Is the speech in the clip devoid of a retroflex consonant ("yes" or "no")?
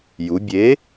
yes